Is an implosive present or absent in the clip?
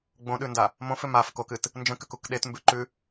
present